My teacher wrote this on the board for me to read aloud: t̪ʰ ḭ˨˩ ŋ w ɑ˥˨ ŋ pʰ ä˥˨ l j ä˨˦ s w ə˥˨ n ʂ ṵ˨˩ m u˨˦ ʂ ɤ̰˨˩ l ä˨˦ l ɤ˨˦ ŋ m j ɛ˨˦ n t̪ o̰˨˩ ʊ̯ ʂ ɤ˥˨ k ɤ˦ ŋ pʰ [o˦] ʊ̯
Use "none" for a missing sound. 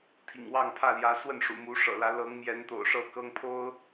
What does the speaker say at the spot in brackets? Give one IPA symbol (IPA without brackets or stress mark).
o˦